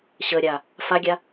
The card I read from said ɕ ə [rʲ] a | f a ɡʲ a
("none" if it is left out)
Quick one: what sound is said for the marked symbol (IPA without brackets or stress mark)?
ɾʲ